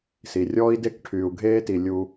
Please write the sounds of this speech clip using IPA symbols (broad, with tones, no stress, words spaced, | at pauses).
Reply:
si˩rʲɔː˦i̯de˦k ʈʰyː˩u̯ɡʱeː˦ti˩ lʲu˩